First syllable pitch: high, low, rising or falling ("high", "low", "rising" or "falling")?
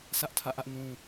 high